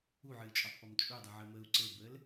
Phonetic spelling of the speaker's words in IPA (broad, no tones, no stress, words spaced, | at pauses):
uʕɨːt͡ʃʼɔtˤpɔm t͡ʃʼudˤɨʕəːməːu̯ ǀɘbəːl